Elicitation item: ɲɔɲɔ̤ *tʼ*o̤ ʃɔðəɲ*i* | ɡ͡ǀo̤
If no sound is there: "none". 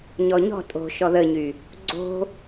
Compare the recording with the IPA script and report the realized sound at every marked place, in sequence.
tʼ, y

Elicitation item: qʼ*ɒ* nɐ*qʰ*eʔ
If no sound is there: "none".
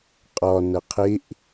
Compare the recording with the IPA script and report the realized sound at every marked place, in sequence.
ɒ, qʰ

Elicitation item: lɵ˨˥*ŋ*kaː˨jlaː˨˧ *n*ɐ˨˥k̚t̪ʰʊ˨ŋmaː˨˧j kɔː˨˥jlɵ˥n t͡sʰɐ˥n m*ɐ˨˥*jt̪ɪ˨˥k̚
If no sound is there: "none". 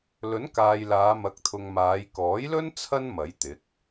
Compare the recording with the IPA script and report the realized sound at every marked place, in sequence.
n, m, ɐ˨˥

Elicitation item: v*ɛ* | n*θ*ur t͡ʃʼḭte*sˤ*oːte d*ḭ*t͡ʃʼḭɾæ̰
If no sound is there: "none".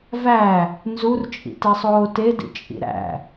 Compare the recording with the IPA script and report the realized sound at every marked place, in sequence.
æ, z, sˤ, ḭ

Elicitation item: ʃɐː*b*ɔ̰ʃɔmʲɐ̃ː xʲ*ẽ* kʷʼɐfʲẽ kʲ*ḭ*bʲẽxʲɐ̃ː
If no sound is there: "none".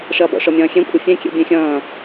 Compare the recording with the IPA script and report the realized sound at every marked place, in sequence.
b, ẽ, ḛ

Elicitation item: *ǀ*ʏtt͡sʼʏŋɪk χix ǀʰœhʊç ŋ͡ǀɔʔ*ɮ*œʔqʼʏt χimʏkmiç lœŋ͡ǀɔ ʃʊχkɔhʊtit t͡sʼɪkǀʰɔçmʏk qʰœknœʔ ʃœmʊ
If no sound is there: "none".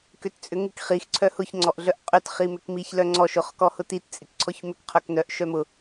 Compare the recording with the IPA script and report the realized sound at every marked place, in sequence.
k, ɮ

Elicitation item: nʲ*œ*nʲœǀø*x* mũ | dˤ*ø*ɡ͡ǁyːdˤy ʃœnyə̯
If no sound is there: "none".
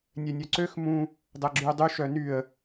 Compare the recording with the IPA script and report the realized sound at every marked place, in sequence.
ɛ, x, ɛ

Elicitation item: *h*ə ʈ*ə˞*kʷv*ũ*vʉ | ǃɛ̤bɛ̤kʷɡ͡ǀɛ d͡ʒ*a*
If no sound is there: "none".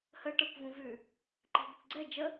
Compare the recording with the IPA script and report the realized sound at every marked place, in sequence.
h, ə˞, ũ, ə

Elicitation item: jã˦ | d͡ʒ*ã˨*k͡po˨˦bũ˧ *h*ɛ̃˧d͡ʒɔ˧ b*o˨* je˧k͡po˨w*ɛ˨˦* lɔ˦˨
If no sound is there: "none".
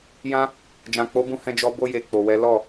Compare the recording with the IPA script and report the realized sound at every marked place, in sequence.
ã˨, h, o˧, ɛ˨˦

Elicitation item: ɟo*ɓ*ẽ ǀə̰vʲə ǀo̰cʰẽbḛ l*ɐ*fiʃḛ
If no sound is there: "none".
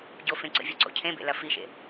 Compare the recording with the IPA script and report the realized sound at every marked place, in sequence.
f, ɐ

